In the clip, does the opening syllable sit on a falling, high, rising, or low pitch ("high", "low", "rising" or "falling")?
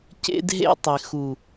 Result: high